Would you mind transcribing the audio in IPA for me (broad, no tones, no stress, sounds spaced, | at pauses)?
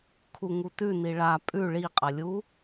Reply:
kʰ u ŋ u t ʉ n i ɭ a pʼ ʉ ɭ i qʼ ɐ lʲ u